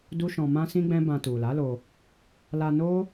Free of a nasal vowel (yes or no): no